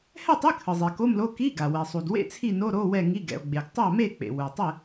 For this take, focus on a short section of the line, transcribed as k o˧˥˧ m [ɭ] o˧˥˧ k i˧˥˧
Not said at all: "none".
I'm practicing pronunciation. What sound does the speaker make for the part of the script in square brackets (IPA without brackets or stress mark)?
l